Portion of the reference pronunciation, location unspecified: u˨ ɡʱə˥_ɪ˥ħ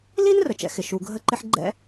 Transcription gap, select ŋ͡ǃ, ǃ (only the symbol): ǃ